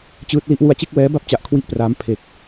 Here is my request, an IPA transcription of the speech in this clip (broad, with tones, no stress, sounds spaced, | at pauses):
t͡ɕ ɯː˦˥ t̚ l i˦˥ ʔ w u˧ a̯ t͡ɕ e˥˩ k̚ w ɛː˦˥ b a˥˩ p̚ t͡ɕ a˨˩ ʔ kʰ w i˥˩ ʔ p r aː˦˥ m pʰ e˨˩ k̚